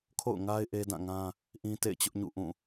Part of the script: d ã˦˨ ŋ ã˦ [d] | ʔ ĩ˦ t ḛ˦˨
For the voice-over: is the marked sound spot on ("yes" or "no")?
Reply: no